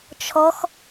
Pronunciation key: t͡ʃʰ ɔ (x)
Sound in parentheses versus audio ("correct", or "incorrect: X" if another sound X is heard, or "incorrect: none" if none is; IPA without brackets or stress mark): correct